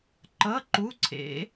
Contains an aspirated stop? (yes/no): yes